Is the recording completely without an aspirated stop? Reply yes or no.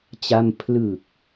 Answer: no